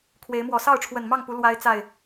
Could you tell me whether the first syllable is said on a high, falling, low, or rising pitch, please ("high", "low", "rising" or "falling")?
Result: rising